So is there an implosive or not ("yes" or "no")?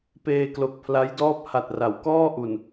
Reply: no